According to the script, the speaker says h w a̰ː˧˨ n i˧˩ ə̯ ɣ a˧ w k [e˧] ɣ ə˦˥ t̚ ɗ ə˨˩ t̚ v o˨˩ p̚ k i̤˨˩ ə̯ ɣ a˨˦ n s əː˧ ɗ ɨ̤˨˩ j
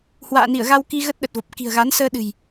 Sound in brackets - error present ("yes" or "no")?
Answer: yes